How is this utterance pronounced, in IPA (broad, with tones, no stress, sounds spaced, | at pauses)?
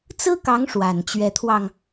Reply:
t͡s ɹ̩˥ k ɑ˧˥ ŋ ʂ w a˨˩ n t͡ɕ ɥ ɛ˧˥ t̪ʰ w ɑ˧ ŋ